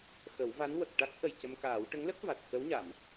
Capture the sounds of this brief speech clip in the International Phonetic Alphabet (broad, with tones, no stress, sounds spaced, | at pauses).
x ə˨˩˦ w v a˧˥ n w ə˨˩ k̚ ʈ a˦˥ k̚ ʔ ə˨˩ j c ə˧ m k aː˨˩˦ w ʈ ə˧˥ ŋ l ə˦˥ k̚ v a˨˩ t̚ x ə˧˥ w ɲ a˨˩˨ m